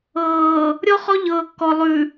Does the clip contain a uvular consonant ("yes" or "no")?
yes